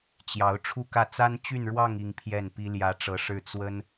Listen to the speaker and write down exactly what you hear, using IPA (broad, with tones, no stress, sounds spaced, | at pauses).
t͡ɕ j ɑ˧˥ ʊ̯ ʈ͡ʂʰ u˥˧ k ä˥˩ t͡s a˥ n t͡ɕ y˥˧ n ɻ w ɑ˥˧ ŋ i˥˧ ŋ pʰ j ɛ˥˩ n p i˥ l j ä˧˥ ʈ͡ʂ ɤ˧˥ ʂ ɻ̩˥˩ t͡s w ə˥ n